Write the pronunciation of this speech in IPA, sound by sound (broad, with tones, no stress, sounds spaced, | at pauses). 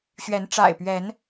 ɕ ɥ ɛ˨˦ n ʈ͡ʂ a̰˨˩ ɪ̯ p ɥ ɛ˨˦ n